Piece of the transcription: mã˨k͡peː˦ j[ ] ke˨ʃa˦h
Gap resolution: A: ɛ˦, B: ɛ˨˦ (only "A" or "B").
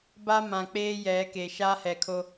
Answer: B